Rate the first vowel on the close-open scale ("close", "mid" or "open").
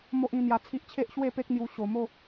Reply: mid